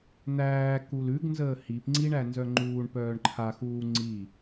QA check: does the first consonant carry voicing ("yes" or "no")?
yes